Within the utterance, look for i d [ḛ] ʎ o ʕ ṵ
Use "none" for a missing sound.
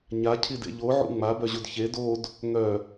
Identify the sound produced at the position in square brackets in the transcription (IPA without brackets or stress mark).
ḛ